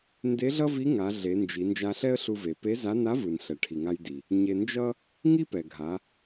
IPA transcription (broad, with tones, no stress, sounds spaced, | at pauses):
n d e˧˥ ɮ ʌ˥ v i˧˥ ŋ a˩˧ ɮ e˩˧ n d͡ʒ i˩˧ n d͡ʒ a˧ ɬ ɛ˥ ə̯ ɬ u˧ v e˩ p e˧˥ z a˧˥ n a˧˥ v ɯ˩ n ɬ ɛ˩ ʈʰ i˩ ŋ a˧ j d i˩ | ɲ e˧ n d͡ʒ ʌ˥ | ŋ i˥ p ɛ˩ ɡʱ a˩˧